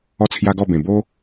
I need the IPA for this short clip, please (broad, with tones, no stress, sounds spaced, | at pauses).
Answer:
ɔ˥˧ t͡sʰ j a˦ ɡ ɔ˥˧ b ẽ˨˩ b o˦